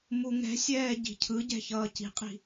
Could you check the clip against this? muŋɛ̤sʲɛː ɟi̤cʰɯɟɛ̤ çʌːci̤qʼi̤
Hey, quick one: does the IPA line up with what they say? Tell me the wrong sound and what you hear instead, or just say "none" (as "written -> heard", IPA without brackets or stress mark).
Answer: none